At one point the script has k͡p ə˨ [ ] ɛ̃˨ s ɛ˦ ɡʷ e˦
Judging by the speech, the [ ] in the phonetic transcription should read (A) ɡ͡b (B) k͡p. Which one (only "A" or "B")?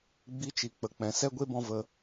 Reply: B